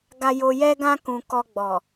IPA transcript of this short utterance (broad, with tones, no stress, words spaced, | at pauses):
ɡa˧jo˧jɛ˦ɡã˦ kũ˧ kɔ˧ɡ͡bɔ˨